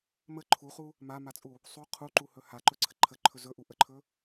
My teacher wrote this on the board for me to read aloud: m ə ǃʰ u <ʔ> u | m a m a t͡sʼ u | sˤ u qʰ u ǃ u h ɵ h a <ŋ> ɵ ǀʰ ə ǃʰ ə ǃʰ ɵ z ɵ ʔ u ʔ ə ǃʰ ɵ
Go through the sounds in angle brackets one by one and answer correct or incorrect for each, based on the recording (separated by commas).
incorrect, incorrect